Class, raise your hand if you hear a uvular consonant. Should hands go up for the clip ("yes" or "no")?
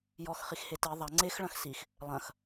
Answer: yes